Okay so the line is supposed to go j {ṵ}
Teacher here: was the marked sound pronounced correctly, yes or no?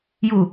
no